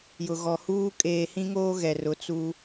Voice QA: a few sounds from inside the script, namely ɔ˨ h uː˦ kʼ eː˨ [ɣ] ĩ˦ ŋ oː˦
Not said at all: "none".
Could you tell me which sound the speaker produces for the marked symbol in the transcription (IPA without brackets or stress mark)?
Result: h